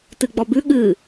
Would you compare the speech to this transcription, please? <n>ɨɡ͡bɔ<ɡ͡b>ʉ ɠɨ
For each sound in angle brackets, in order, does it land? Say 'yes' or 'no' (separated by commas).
no, no